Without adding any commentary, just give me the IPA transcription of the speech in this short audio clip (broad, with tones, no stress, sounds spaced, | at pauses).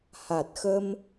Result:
h a˨˩ t̚ x ə˧ m